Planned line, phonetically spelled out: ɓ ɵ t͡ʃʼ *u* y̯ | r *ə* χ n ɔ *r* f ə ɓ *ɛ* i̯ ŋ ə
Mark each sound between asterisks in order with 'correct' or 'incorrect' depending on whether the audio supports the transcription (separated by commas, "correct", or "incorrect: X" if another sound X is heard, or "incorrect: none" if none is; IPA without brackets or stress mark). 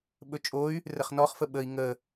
incorrect: o, correct, incorrect: χ, incorrect: ə